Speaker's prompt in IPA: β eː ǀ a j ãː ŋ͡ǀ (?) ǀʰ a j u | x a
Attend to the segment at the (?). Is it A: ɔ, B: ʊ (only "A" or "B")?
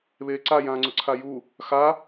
B